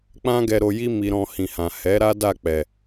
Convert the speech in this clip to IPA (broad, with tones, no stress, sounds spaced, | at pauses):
k͡p ã˦ ɡ ɛ˧ ɾ o˧ j i˦ m i˧ ɾ ɔ̃˧ h ĩ˨ h ã˨ h ɛ˨˦ ɾ a˦ d a˦˨ k͡p ɛ˨